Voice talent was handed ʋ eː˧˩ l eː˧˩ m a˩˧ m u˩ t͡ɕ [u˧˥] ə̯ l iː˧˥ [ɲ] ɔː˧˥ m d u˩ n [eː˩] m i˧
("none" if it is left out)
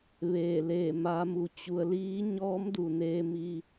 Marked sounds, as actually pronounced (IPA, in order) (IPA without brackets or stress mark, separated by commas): u˩˧, ɲ, eː˧